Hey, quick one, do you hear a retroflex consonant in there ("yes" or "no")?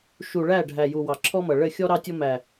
yes